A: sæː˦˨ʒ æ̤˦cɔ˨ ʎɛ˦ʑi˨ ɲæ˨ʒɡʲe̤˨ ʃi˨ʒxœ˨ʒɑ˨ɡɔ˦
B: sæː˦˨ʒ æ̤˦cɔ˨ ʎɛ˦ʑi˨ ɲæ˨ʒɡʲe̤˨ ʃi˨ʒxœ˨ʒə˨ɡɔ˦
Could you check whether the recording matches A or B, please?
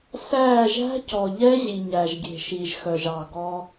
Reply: A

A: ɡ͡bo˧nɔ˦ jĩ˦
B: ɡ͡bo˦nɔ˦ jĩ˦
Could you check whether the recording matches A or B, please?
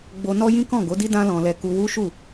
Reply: A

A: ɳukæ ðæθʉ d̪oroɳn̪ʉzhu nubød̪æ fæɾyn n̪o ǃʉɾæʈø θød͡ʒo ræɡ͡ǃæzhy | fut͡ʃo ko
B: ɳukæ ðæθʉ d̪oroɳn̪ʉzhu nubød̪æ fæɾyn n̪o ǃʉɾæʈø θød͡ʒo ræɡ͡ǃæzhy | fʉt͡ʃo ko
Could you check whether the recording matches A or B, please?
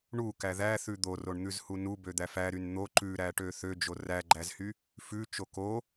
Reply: B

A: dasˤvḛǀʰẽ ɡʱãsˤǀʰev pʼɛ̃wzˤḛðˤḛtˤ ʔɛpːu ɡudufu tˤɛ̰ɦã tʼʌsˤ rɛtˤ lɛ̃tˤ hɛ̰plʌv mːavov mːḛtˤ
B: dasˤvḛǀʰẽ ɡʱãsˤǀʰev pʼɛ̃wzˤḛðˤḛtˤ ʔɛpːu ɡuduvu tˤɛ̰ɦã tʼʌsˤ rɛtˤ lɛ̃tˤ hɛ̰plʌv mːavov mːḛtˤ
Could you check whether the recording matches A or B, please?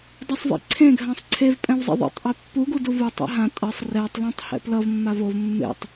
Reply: B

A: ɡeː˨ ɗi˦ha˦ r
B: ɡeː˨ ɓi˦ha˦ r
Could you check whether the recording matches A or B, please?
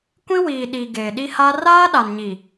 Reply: A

